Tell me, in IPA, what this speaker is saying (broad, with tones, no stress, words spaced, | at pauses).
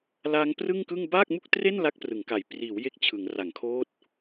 laː˦˥ŋprɯ˥˩ŋkɯ˥˩ŋ baː˥˩k̚mu˥˩k̚tre˥˩n la˥˩k̚prɯ˩˦ŋka˨˩j priː˩˦w je˦˥k̚t͡ɕʰɯ˩˦ŋ ra˩˦ŋkʰoː˦˥t̚